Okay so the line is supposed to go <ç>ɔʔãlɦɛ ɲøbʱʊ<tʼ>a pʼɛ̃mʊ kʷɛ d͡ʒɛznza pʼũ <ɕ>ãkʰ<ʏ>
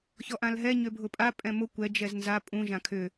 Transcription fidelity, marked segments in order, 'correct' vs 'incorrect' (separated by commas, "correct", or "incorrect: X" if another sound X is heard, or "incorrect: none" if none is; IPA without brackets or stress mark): correct, incorrect: pʼ, incorrect: ʒ, correct